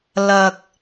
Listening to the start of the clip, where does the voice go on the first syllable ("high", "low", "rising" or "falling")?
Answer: low